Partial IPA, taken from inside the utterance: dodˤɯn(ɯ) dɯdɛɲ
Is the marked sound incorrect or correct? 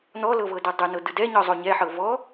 incorrect: ɤ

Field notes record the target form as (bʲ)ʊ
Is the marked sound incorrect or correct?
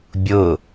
correct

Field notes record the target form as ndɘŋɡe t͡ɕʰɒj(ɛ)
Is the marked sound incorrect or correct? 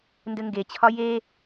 incorrect: e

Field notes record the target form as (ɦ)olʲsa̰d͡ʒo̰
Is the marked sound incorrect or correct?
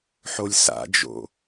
incorrect: ħ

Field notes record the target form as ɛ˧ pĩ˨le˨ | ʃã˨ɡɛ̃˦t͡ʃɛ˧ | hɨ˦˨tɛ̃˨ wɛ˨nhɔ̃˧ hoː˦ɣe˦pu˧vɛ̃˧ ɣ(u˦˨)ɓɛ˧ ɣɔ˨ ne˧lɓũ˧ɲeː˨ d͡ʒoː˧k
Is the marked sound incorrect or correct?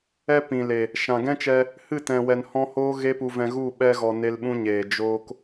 correct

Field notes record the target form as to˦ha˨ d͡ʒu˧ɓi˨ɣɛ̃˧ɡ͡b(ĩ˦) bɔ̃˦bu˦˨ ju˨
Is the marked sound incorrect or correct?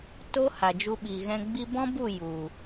incorrect: i˦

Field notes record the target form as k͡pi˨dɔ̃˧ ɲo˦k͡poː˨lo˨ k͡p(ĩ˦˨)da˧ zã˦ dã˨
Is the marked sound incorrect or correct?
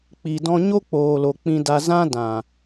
incorrect: ĩ˧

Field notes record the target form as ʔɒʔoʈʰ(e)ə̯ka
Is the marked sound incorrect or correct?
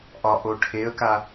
correct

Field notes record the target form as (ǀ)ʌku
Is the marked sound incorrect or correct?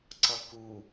correct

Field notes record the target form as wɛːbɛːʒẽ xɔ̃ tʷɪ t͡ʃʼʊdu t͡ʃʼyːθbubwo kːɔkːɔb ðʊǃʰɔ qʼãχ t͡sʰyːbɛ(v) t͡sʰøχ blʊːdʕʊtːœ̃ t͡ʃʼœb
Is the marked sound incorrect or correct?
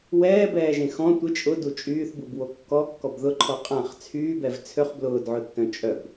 correct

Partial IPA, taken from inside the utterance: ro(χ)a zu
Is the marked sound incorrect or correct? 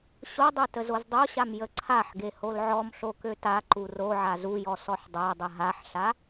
incorrect: ʕ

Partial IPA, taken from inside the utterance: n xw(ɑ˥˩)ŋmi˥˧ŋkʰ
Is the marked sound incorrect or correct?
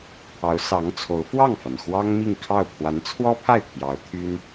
incorrect: ɑ˥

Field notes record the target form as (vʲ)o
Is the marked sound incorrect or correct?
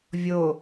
correct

